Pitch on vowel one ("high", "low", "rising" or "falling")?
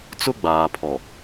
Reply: high